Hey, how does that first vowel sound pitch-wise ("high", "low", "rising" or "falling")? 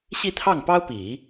falling